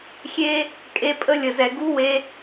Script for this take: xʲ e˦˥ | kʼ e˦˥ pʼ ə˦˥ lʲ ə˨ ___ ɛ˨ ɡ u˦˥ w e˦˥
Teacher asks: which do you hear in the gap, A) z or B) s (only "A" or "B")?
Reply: A